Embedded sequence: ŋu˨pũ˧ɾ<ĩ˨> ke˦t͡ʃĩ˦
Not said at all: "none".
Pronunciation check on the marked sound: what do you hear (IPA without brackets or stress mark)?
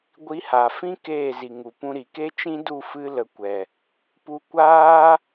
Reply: i˨